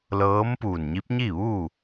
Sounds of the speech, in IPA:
l ɤː˧˥ m p uː˧˩ n ɲ i˧˥ p̚ ɲ i˥˨ ʋ u˥˨

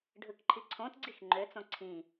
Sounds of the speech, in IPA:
ɖʱ ɯ k ǃʰ i ǀʰ õ t ɡ͡ǀ i x ŋ͡ǃ ø t͡s õ ǀʰ ĩ

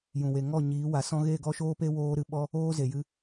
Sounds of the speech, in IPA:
j ũ˨ w e˨ ŋ ɔ˦˨ ɲ iː˨˦ w a˨˦ s ɔ̃˦ ɣ e˦˨ ɡ ɔ˦ ʃ oː˦ p e˦ w oː˦ ɾ ɨ˧ ɓ ɔ˦ | oː˦ z e˨ j ɨ˧

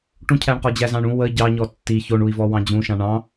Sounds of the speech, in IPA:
ʈ ũ cʰ æ ɳ q ɔ d͡ʑ æ z ɑ̃ ɳ ũ w ə ɟ ɑ ɲ ɔ tː i ç o ɳ u i̯ v ɔ w ɑ̃ d͡ʑ ũ ʃ ɑ̃ ɳ ɑ̃

